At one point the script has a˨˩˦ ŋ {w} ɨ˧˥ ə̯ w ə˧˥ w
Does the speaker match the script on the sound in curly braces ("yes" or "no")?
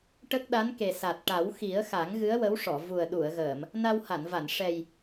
no